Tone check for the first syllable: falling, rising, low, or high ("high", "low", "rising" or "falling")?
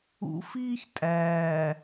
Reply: rising